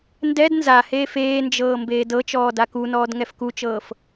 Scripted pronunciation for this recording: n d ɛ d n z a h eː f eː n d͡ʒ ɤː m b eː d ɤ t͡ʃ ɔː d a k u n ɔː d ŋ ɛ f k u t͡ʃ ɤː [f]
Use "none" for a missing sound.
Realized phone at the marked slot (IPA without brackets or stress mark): f